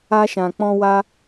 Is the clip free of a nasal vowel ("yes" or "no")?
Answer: no